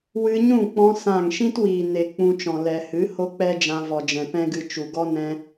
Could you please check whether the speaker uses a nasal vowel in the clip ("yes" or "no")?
yes